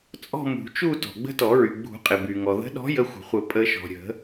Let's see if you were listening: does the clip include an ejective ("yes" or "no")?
yes